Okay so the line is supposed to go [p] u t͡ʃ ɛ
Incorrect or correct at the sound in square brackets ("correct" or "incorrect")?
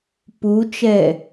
correct